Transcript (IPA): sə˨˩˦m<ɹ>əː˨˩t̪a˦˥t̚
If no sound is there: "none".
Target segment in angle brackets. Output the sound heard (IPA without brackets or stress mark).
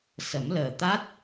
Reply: l